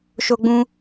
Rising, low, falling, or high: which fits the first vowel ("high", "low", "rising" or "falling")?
high